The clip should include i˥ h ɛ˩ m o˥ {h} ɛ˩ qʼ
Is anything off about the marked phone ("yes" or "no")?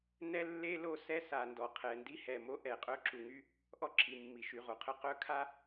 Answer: yes